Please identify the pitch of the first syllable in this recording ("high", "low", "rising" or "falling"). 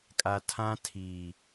low